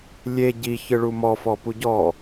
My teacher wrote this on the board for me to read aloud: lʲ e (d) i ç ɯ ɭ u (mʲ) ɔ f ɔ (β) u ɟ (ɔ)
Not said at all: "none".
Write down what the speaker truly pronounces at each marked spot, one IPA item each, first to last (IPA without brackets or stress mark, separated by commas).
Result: ɟ, m, p, ɔ